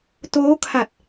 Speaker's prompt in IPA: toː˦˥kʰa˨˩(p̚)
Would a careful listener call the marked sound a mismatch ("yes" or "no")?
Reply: yes